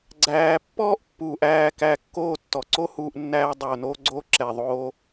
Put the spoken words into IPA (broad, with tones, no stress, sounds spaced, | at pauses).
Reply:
ɡ͡ǀ æː˨ pː ɔː˦ ʔ pː uː˨ ʔ æː˦˨ k æ˧ kː oː˦˨ tː ɔ˨ ǀ o˦ h uː˧ ʔ nː æː˦ dˤ oː˧ n oː˦ ɡ͡ǀ oː˦ ǁ ɛ˨ ðˤ oː˦